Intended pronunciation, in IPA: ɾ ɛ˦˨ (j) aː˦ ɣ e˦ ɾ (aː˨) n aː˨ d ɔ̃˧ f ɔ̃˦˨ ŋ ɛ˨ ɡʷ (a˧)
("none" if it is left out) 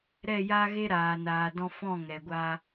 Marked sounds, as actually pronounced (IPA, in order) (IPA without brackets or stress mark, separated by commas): j, aː˨, a˧